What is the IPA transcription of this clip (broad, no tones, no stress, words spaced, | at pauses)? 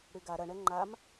ɽyɡa ɾɐɳɛ ŋ͡ǃam